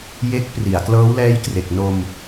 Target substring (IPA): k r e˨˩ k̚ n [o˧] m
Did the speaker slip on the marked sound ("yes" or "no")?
no